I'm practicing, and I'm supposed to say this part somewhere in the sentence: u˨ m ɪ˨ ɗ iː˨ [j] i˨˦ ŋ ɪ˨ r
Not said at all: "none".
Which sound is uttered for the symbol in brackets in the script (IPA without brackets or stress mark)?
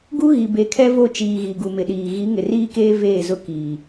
ɣ